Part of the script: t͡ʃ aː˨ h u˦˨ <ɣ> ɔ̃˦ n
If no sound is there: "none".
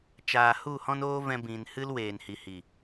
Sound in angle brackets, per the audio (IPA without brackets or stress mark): h